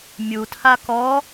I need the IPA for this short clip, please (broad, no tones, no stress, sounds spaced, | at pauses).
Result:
mʲ u tʰ a k ɔ